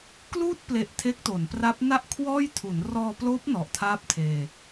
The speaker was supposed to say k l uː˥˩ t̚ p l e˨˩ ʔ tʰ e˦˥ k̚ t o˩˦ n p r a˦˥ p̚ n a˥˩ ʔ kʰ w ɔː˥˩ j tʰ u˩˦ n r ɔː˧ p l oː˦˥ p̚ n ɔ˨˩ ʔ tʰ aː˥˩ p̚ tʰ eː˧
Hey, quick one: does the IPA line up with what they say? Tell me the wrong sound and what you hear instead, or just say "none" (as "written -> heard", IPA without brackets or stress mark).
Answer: none